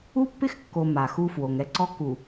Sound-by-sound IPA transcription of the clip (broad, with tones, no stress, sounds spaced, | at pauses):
u˦ pː ɪ˦ x kː o˨ m a˨ x u˦ f w o˨ ŋ ɛ˦ ǀ ɔ˦ k u˨